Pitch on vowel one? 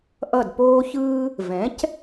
falling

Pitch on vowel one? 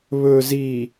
low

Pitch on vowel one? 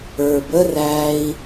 low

